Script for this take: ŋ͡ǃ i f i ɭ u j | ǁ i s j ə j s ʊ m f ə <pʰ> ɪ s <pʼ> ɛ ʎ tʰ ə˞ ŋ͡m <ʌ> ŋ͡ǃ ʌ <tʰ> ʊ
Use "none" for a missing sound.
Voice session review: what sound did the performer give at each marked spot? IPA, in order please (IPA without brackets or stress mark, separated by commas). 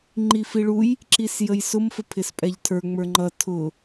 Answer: pʰ, pʼ, ə˞, tʰ